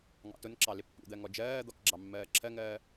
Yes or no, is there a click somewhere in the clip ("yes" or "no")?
yes